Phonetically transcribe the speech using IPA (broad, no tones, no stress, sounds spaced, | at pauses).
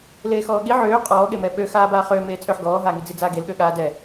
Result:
l eː x ɔː ɠ i ʕ øː qʼ ɔː ɠ e m ɛ ɓ ø x aː b aː χ øː m eː t͡sʼ ø ħ ɡ ɔː ɦ aː ŋ i d͡z i d͡z aː ɡ e l ɠ ø ɠ aː d ɛ